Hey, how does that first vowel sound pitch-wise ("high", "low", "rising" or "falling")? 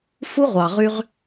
high